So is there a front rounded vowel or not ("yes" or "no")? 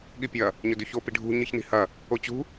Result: no